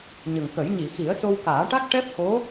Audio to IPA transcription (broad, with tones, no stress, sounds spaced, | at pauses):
ɲ ə˨˩ ŋ k ə˨˩˦ j ɲ i˨˩˨ x i˨˩˦ ə̯ s o˧ w k aː˨˩˦ ʈ a˦˥ k̚ ʈ ɛ˦˥ p̚ h o˧˥